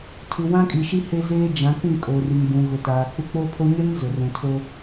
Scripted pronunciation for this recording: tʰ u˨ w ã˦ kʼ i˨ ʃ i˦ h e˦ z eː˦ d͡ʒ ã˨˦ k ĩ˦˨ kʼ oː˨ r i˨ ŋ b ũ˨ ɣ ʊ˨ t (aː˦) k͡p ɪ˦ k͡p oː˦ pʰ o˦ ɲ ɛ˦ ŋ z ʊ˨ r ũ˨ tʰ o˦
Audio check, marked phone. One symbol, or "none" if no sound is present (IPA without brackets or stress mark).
aː˨